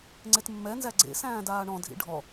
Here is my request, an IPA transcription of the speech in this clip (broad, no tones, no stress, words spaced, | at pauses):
ŋ͡ǀetmːɛnzæ ɡ͡ǀḛsæ̃ː daːɳɔ̃ dʱḭɖʱɔ